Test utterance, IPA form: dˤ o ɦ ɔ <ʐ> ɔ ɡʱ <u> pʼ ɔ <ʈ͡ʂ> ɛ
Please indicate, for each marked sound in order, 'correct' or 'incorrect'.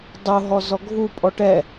incorrect, correct, incorrect

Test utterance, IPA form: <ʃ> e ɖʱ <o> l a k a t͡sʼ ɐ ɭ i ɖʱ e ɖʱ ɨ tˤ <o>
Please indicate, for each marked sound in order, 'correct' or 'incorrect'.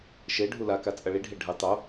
correct, incorrect, correct

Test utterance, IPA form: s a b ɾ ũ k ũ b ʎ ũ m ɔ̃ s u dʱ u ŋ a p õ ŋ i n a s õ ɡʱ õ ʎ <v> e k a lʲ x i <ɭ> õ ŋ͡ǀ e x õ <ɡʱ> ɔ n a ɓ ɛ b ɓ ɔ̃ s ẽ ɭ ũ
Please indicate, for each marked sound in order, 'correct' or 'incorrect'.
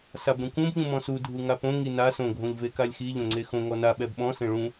correct, incorrect, incorrect

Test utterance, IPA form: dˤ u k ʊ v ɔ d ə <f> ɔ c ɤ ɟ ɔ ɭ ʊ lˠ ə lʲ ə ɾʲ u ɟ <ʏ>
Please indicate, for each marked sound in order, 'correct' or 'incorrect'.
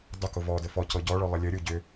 correct, correct

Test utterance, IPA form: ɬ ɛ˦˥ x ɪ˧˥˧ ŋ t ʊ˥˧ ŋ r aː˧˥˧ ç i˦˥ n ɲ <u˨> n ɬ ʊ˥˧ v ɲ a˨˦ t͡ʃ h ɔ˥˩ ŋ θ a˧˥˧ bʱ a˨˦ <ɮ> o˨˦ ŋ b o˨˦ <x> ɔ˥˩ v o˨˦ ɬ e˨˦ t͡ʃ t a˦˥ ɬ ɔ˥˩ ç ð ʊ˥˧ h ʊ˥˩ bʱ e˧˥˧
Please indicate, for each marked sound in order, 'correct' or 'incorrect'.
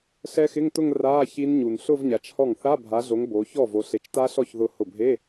correct, correct, incorrect

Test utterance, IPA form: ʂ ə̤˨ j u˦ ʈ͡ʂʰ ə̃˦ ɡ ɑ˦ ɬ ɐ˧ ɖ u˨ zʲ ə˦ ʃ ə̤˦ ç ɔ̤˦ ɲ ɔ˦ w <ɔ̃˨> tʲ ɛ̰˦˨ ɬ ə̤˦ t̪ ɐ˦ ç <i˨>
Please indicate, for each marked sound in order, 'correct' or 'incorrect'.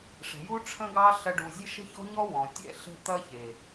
correct, incorrect

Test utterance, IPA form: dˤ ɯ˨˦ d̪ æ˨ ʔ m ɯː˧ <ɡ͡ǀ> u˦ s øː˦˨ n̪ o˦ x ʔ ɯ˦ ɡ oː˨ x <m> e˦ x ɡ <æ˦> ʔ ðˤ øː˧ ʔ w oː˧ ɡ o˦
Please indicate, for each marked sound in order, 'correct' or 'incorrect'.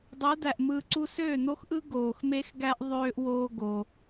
incorrect, correct, correct

